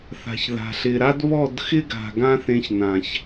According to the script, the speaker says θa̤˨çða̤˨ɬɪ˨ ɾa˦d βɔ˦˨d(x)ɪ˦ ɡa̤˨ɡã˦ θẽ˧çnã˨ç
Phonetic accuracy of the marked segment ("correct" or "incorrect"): correct